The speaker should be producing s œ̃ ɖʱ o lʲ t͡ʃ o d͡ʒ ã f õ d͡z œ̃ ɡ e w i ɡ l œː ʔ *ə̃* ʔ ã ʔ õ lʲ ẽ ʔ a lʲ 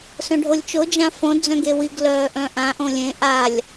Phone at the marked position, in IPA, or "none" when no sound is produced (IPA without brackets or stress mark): œ̃